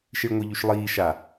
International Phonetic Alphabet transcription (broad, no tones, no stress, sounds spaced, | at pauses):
ʃ i ɭ ŋʷ i ʎ y ʃ lˠ iː ʃ a